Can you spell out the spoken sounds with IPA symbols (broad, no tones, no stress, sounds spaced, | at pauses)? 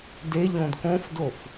d e ʎ õ d k õ f d o f